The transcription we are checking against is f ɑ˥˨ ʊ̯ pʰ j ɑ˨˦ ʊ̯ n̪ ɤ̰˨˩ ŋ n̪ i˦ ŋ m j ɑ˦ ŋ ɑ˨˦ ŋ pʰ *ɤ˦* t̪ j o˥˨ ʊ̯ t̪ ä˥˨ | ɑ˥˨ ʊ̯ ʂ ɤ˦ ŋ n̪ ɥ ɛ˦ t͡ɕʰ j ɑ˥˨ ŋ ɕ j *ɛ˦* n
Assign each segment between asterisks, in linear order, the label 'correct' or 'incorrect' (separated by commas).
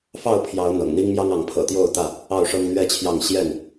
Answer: incorrect, incorrect